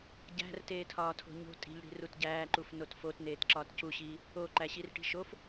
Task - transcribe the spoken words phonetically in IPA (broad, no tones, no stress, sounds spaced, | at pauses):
ɟ æ̤ r t eː tʰ ɒː tʰ o̤ ɲ o̤ tʼ i̤ ʎ ɽ i̤ r u t ɟ æː ǃ u f n o t f o t n eː t ǁ ɒː t c u ɕ iː | o ǃ æ ɕ i r ʈ i̤ ʃ o f